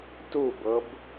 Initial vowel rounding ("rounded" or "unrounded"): rounded